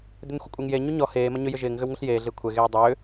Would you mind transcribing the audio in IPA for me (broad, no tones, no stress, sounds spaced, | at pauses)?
d ʏ n xʷ ɐ kʷʼ e ŋ j e ɲ u ɲ ɔ h eː m ɐ ɲ ʏ j ʏ ʒ ɪː ŋ ɣ ʏ w ŋ ʊ ɬ j eː ɮ ɪː kʷʰ ɛ ɣ eː dˤ ʏː